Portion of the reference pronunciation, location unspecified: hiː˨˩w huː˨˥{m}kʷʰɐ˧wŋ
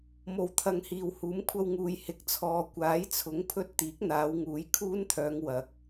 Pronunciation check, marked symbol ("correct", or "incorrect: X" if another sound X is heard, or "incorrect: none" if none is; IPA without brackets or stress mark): correct